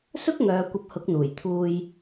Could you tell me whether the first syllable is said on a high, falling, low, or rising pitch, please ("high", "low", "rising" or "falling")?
high